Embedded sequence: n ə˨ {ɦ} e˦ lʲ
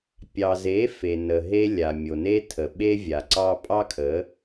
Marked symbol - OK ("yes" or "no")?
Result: yes